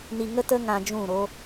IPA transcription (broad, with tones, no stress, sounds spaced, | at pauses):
n i˧ ŋ ə˦ t ə˦ ŋ ã˧ d͡ʒ ũ˦˨ ɾ o˦